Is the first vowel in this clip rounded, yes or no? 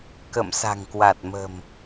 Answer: no